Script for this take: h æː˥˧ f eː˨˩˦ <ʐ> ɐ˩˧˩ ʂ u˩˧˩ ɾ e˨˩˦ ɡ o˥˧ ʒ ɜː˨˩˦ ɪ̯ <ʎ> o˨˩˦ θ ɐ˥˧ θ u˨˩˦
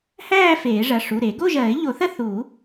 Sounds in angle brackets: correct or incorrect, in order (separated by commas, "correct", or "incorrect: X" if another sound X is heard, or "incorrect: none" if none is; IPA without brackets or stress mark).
correct, correct